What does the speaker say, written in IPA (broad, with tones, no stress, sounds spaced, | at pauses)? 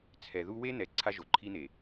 t͡sʰ ɛ˨ ð u˦ w e˦ n̪ ɛ˨ ǀʰ a˦ ʒ o˨ ǃʰ i˦ n̪ e˨